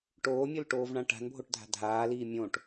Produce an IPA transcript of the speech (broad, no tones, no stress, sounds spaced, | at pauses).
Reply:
ʈ oː mʲ o l ʈ oː v ɳ ã ʈ a̤ n bʱ o ʈ dʱ a̤ dʱ aː l iː mʲ õ ʈ